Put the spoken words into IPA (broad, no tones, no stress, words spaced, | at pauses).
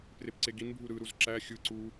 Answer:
prepǀeɡinbʱu ɾɯɾuz ǁæ xʲɯ ǀu